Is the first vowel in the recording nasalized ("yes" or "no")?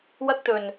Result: no